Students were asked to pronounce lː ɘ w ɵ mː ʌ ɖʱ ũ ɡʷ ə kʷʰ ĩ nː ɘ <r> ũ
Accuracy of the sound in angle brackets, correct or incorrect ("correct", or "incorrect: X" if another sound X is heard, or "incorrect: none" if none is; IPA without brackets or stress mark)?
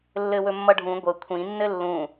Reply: incorrect: lː